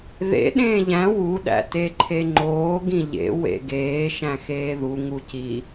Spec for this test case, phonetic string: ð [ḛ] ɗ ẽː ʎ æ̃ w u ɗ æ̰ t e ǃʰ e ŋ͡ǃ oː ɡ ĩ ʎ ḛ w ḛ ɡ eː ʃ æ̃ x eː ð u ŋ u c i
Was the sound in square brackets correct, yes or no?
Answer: yes